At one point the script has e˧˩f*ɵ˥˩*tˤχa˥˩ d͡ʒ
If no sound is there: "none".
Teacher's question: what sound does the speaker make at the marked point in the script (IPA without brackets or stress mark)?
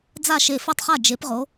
ɵ˥˩